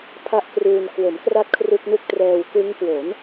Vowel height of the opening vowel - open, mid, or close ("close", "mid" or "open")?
open